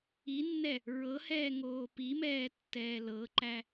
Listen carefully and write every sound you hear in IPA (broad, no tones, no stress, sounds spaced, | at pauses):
i nː ɛ | ɹ ɤ h ɛː ŋ oː p i m ɛː tː ɛː l ɤ ǃ æ